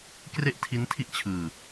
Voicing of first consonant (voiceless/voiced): voiceless